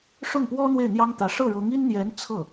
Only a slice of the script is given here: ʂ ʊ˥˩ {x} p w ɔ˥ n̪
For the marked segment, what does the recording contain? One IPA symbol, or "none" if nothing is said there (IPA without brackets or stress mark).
ŋ